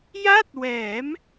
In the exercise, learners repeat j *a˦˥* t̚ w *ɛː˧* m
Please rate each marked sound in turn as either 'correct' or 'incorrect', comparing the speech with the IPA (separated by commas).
incorrect, incorrect